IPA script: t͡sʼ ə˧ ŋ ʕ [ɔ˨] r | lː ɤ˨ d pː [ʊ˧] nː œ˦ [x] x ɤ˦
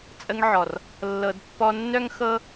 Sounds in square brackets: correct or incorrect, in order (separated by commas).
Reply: correct, incorrect, incorrect